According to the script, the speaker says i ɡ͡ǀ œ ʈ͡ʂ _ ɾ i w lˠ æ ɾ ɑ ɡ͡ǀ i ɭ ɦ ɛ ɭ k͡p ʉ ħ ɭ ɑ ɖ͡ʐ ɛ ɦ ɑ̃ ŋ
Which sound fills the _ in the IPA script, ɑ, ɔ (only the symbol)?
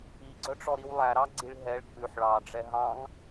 ɔ